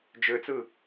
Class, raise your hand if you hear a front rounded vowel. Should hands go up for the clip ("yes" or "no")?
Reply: yes